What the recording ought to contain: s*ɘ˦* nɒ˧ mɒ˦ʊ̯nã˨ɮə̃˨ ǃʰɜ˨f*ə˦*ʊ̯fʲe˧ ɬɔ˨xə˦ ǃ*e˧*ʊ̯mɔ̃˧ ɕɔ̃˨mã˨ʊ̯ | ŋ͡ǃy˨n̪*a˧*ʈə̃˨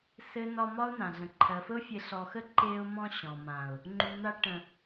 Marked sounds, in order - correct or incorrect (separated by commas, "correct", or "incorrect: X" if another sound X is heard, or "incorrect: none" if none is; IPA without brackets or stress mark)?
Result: correct, correct, correct, correct